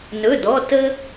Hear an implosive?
no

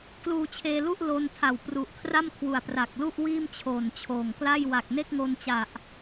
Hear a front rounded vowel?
no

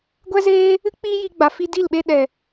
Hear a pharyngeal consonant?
no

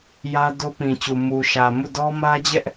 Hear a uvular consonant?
no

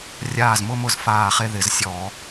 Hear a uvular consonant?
yes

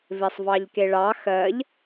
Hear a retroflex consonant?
yes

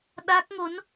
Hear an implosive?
yes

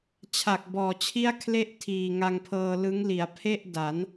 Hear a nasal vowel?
no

